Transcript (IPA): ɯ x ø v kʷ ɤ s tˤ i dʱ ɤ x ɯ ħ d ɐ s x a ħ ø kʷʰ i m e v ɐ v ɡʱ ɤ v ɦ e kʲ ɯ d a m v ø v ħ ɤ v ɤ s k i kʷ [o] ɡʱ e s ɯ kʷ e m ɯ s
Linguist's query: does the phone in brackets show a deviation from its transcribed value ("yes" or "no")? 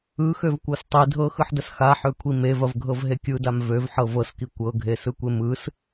yes